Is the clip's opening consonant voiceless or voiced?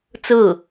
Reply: voiceless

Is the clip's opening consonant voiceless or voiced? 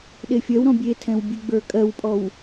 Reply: voiced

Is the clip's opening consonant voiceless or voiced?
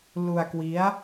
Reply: voiced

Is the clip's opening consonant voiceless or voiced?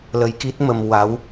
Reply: voiced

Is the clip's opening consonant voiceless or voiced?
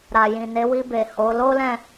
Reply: voiced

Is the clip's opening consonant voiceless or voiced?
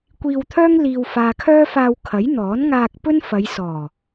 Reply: voiceless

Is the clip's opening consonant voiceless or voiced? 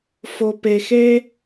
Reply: voiceless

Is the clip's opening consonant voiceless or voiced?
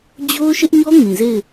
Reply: voiced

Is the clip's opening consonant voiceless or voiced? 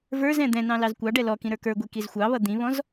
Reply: voiced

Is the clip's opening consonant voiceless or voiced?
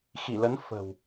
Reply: voiceless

